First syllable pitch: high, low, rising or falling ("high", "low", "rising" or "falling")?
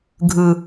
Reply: low